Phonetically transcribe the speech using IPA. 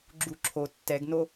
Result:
ɡ͡ǁ u ǁʰ o tː ɛ ɡ n o

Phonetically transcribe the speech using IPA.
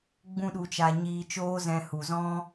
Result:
ɡ͡b ũ˦ ɗ u˧ t͡ʃ a˧ ɲ iː˧ t͡ʃ oː˦ z ɛ̃˧ h u˨ z ɔ̃˦

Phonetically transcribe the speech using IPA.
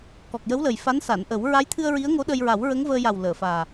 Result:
k ɔ˨˩ k̚ j ə˧˥ w l ə˨˩ j f a˧˥ n s a˨˩˨ n ʔ ə˨˩˦ w ɹ a˧˥ j t̪ʰ ɨ˧ ə̯ ɹ i˧˥ ə̯ ŋ o˧˥ ɗ ə˧ j ɹ a˨˩˦ w ɹ ə˧˥ ŋ v əː˧ j a˨˩ w l əː˨˩˨ f aː˨˩

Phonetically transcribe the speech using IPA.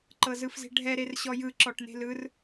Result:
ǃ ɤ z ɯ f z e̤ ɖʱ ɛ ɾ e r ɕ ɔ j ɯ ǁ ɔ ʈ n e̤ l ɯ r

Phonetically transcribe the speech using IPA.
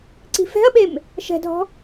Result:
ǀ i̤ f ɛ̤ ɐ̯ ɓ e m | ʃ ɛ̤ dʱ ɔ̤

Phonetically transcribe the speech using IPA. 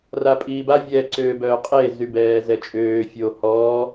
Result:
r a pʼ iː b a vʲ ɛ ǀ øː b œː qʼ e z y b ɛː z ɛ t͡ʃʼ øː fʲ o h ɔː

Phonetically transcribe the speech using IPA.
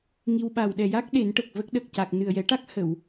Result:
ŋ i˧ w ɓ a˨˩ w ɗ ɛ˨˩ j a˦˥ k̚ ɗ e˨˩˦ n ʈ ə˨˩ k̚ v ə˦˥ k̚ ɗ ə˨˩ k̚ c a˨˩ k̚ n ɨ˨˩ ə̯ j ɛ˨˩˦ ʈ a˦˥ k̚ h ə˨˩˨ w

